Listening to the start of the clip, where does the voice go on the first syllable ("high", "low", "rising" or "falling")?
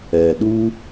low